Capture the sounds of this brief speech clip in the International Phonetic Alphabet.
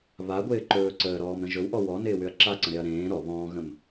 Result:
β a ɡʷ ɪː ǃ ɵː ǀ əː ɾ ɔː m ɾ ə̃ ʒ ɵ w ʔ ɔ w ɔ n ɪː w ʏ ɐ̯ ǁ a ǀ ə̃ ɾ e ɐ̯ ɾ ẽː ɾ ɔ β ɔ̃ː ɣ ə̃ m

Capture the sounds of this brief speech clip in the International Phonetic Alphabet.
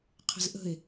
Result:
qʰ ə̤ z ʔ ə̤ e̯

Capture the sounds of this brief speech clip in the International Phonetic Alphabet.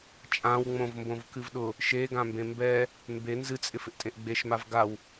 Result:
t͡ʃʼ ã w ŋ͡m õ v m b õ v k ɨ v ɗ ʊ | ʃ e ɡ ã m b ẽ m b ɛ | m b e n z ɨ t͡sʼ ɪ f ɪ ʔ tʼ ẽ ʔ ɡ͡b e ʃ m a v ɡ a w

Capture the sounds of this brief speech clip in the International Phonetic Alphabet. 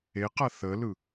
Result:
e q a θ ə l ɯ

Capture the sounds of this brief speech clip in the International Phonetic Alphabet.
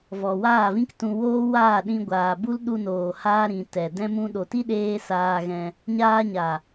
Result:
v ɔ˨ w aː˦˨ v ĩ˦ k t ũ˨ w oː˧ w aː˦˨ ɗ ĩ˧ ɡʷ aː˨ b u˦ l ɗ u˧ n oː˨ h aː˧ ɾ ĩ˨ t ɛ˨ d ɛ̃˧ m ũ˧ ɗ o˨ t i˦ ɗ eː˦ s aː˧ ɣ ɛ̃˧ | ɲ aː˧ ɲ a˨

